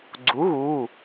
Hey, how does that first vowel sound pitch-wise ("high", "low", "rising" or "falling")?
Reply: rising